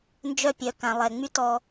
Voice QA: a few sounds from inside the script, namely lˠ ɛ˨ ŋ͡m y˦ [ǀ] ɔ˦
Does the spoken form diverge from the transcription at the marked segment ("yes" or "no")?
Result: yes